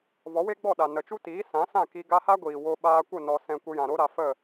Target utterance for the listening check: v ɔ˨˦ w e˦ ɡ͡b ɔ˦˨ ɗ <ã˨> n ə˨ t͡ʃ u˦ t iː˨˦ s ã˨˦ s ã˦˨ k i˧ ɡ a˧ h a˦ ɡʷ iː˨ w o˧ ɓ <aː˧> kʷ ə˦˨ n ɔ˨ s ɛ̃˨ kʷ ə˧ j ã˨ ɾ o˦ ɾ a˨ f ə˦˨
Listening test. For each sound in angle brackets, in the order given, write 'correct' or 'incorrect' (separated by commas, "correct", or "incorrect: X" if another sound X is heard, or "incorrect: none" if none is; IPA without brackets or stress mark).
incorrect: a˨, correct